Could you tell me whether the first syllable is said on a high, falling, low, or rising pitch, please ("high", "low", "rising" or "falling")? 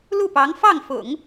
falling